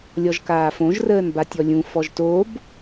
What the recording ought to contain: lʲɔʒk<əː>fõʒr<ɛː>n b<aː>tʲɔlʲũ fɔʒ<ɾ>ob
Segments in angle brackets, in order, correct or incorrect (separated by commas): incorrect, incorrect, incorrect, incorrect